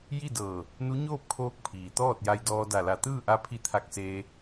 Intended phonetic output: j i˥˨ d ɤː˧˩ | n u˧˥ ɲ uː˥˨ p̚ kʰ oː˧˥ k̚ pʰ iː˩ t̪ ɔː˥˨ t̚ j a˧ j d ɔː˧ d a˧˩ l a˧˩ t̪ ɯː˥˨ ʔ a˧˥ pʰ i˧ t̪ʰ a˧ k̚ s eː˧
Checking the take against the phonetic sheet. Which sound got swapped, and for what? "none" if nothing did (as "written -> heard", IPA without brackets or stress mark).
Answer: uː˥˨ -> oː˥˨